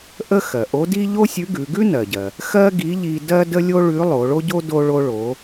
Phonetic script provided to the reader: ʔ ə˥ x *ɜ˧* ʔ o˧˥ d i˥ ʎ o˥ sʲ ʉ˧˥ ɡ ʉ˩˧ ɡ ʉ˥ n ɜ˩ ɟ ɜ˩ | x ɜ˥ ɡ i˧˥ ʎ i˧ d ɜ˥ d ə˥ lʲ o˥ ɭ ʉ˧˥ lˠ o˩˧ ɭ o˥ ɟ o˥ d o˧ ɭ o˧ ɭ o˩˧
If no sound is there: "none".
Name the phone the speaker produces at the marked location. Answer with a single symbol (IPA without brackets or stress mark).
ɜ˩